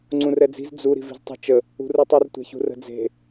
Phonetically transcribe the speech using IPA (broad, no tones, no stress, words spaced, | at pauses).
ŋ͡ǀũrɛd͡zi̤z d͡zu ɾi̤vi̤ztˤə̤ t͡ʃə | ṳrutˤur tʷɛ̤çṳrə̤d͡ze̤